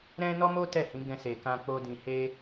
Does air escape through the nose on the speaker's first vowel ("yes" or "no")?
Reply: yes